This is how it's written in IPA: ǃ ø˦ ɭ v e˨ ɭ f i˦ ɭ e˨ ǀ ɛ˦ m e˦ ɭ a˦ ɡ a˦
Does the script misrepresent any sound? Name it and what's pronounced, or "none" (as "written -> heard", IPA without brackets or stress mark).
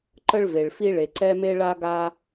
ø˦ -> ə˦